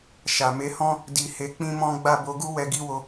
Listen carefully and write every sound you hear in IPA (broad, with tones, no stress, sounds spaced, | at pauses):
ʃ a˨ m e˨˦ h ɔ̃˦ | d i˧ h e˧ k͡p ĩ˦ m ɔ̃˦ ɡ͡b a˦˨ b o˨˦ ɡ u˦ w ɛ˧ ɡ i˦ w o˧